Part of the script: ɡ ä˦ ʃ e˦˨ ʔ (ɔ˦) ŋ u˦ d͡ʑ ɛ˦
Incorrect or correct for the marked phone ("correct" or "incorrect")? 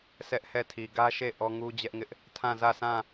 correct